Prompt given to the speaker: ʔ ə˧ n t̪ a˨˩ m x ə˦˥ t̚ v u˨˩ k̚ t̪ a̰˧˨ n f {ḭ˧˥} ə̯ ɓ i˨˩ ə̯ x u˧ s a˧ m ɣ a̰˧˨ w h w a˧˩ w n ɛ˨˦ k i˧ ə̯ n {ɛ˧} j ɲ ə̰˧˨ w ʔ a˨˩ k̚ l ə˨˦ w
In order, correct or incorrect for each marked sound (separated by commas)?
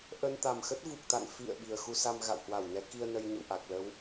incorrect, incorrect